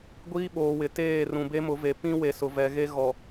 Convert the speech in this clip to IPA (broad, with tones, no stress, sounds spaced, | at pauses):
ɡʷ iː˦ ɓ oː˨ w ɪ˨ t eː˦˨ r ũ˨ b e˦ m ʊ˨˦ v e˨ p ĩ˦ w e˨ s ʊ˨ v ɛ˨ ɣ e˦ ɣ ɔ˨